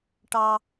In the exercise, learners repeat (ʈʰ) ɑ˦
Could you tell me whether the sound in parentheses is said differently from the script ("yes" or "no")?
yes